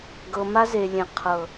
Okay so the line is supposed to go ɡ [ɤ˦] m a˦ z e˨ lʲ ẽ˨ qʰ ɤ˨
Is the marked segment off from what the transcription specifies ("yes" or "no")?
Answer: yes